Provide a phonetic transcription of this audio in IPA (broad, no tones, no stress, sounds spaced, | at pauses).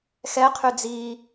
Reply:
x ɛ qʰ y d͡z i